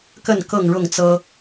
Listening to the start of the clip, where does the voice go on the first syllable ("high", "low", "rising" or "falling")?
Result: falling